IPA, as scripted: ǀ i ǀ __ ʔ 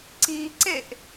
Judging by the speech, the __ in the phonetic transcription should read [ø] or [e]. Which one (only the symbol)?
e